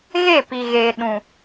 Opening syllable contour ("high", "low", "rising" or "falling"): falling